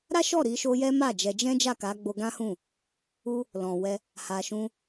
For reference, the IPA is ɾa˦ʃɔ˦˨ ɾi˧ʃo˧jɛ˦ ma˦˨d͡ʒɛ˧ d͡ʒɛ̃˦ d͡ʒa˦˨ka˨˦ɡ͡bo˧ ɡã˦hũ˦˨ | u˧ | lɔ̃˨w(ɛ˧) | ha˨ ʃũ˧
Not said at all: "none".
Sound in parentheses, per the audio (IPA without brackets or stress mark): ɛ˧